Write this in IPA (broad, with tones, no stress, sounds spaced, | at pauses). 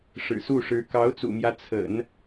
ʂ ɻ̩˨˩ s u˥˩ ʂ ɻ̩˧˥ k ɑ˧˥ ʊ̯ t͡s ṵ˨˩ m j ä˦ t͡sʰ ə̰˨˩˦ n